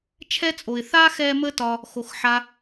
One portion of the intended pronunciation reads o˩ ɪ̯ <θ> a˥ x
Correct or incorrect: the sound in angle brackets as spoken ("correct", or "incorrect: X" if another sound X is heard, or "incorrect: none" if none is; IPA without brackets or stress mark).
correct